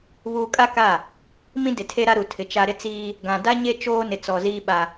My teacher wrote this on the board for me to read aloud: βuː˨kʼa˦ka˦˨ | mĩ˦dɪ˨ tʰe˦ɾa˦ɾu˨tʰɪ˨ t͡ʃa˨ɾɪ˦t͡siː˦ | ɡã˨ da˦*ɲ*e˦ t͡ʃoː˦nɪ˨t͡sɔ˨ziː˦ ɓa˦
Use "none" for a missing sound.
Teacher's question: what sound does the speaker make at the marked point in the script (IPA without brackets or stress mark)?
ɲ